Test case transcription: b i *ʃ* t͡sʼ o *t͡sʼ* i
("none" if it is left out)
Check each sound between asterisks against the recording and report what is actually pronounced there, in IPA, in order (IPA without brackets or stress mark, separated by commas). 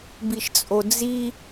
ʃ, d͡z